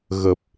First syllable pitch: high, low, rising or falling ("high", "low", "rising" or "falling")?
low